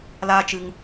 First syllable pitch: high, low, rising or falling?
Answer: high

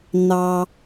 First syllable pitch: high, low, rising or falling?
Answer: low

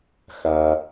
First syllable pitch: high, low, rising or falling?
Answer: low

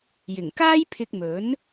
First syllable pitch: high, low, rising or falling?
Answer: low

